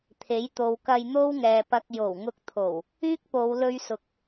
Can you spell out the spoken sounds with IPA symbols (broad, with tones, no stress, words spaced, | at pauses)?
t̪ʰe˨˥jt̪o˨˧w kɐ˧jn̪o˥wŋɛː˨pɐ˧k̚ jo˨˩wŋʊ˧k̚t̪ʰo˨˩w | yː˥k̚po˨˧w lɵ˧ɥsʊ˨k̚